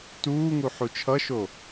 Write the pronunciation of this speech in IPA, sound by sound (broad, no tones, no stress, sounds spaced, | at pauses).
t uː ŋ u ħ u t͡ʃʰ ʌ ʃ o